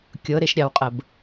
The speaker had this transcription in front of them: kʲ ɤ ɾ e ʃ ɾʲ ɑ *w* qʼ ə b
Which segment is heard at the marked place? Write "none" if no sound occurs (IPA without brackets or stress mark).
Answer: w